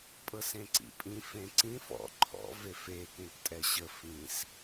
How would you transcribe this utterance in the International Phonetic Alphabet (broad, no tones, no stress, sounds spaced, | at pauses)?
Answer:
pʼ ɤ s ẽ ǀ ḭ pʼ ĩ f ẽ ǀ ĩ f ɔ̰ ǃʰ ɔ̰ v e f e k ẽ k tʼ ɛ ɕ ə f ĩ s